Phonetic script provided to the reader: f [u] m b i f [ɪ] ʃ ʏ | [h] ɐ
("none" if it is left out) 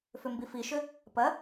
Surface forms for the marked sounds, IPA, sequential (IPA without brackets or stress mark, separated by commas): ʏ, i, p